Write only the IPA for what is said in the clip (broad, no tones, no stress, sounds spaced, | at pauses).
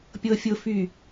pʲ ɤ fʲ ʊ f y